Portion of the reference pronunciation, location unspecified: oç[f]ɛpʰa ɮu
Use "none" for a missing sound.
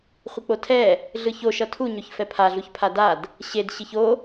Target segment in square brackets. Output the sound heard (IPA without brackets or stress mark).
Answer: f